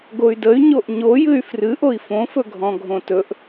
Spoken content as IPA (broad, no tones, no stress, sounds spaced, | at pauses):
ɡ o y̯ d ə y̯ ɲ o ʔ ɲ o j ɨ y̯ f r ɨ ʔ o i̯ f õ f ɵ ɡʱ ɔ̃ ɡʱ õ t ɵ ʔ